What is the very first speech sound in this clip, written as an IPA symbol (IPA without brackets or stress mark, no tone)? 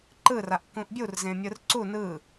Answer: ǃ